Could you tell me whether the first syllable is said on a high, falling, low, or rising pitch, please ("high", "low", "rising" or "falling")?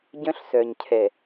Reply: high